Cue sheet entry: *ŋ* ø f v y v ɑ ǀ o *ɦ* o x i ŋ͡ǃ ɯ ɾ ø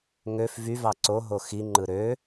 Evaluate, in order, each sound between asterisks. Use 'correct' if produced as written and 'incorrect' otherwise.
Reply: correct, correct

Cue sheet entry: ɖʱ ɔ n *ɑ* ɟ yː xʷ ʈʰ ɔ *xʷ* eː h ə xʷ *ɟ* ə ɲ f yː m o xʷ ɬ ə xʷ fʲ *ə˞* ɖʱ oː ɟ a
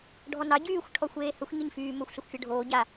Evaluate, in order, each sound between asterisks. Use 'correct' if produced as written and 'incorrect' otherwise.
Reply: correct, correct, incorrect: ɲ, correct

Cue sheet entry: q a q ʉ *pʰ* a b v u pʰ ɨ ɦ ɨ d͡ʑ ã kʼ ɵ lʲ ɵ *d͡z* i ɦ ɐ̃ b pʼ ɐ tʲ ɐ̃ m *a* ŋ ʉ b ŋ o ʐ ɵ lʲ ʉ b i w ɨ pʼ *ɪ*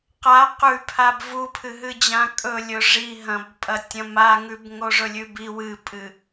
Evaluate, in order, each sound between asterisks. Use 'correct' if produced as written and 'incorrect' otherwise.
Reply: correct, incorrect: ʐ, correct, incorrect: ɨ

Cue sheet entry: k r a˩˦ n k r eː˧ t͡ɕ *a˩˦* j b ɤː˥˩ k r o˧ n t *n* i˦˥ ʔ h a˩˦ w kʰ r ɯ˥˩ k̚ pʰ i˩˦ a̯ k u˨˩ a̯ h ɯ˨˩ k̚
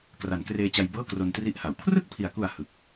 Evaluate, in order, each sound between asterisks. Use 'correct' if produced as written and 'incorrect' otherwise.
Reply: incorrect: a˧, incorrect: r

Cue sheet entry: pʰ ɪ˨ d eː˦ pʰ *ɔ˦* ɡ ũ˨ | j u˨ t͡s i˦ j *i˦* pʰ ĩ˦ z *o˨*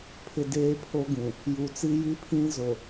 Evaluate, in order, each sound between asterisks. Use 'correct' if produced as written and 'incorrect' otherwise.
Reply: incorrect: o˦, correct, correct

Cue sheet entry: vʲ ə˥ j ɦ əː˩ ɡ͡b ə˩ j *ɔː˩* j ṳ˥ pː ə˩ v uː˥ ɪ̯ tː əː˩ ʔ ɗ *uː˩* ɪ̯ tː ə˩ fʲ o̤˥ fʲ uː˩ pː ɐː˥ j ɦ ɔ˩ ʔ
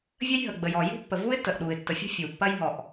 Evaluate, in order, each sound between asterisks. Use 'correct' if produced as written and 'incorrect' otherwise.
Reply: correct, correct

